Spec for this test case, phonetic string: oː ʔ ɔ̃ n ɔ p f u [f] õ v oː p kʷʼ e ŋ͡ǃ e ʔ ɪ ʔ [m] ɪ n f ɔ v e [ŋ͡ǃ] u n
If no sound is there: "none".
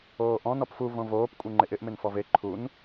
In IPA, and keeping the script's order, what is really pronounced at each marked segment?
v, m, ǃʰ

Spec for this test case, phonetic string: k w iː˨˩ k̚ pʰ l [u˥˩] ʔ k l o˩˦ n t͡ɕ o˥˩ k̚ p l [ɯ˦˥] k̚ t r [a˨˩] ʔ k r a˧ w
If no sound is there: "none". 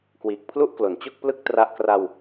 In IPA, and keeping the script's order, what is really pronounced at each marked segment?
u˥˩, ɯ˥˩, a˦˥

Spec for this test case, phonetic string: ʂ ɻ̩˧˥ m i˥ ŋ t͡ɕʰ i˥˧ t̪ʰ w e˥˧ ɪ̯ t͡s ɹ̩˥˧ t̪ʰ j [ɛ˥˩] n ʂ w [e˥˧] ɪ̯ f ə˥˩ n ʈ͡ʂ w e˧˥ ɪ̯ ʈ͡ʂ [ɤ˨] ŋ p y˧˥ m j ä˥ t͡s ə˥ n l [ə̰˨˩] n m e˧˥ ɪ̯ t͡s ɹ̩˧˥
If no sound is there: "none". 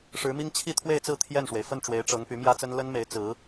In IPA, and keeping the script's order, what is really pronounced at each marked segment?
ɛ˥˩, e˩, ɤ˧˥, ə˥

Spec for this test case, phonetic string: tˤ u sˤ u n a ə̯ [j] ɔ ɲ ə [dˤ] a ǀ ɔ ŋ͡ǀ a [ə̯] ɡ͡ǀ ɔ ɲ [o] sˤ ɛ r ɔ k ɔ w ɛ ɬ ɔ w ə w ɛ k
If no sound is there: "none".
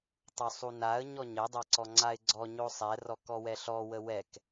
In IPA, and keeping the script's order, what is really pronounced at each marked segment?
ɲ, dˤ, ɪ̯, o

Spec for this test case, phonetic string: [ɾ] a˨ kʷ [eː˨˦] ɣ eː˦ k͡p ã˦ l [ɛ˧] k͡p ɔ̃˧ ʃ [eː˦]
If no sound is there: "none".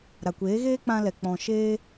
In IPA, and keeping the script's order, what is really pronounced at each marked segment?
ɾ, eː˨˦, ɛ˧, eː˦

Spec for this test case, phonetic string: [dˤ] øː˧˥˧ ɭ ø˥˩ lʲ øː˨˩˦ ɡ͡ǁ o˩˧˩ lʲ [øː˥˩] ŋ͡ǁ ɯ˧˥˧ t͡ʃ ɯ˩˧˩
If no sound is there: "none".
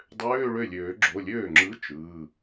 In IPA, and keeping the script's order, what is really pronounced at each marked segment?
dˤ, øː˥˩

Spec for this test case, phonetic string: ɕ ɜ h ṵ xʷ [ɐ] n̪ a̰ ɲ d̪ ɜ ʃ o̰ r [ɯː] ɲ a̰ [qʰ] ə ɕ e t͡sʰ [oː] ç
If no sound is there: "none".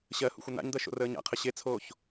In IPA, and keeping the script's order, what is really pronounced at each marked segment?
ə, əː, qʰ, oː

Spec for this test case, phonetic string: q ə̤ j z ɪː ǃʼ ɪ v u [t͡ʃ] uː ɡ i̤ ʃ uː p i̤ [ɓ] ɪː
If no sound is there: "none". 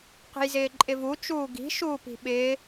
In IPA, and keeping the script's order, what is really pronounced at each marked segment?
t͡ʃ, ɓ

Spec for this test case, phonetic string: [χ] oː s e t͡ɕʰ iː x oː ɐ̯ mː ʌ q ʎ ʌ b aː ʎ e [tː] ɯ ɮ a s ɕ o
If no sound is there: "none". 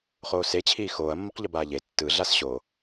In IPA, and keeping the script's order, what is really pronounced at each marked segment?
χ, tː

